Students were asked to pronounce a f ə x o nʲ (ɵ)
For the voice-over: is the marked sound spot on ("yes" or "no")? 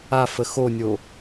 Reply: no